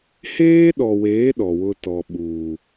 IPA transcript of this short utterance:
h eː˦ ɗ ɔ˨ w eː˨˦ ɗ ɔ˨ w ʊ˦ t ɔ˨ ɓ uː˨

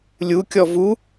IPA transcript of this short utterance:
lʲ u kʲ ɔ v u

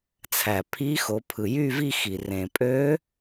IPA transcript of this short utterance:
t͡sʰ æ˩ pʰ i˧˥ x o˩˧ pʰ ɯ˩ j y˥˧ v i˥˧ x i˩ r ẽ˩ pʼ ø˧˥

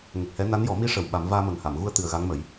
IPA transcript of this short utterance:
ŋ ə˨˩ k̚ h ɛ˧˥ n a˧˥ n j ɔ˨˩˦ m i˧˥ ʂ ə˨˩ w ɓ a˨˩˦ m v aː˧ m ə˨˩ ŋ h a˨˩˨ m ɣ u˧ ə̯ t̪ ɨ˨˩ ə̯ ɣ a˧˥ ŋ m ə˨˩˦ j

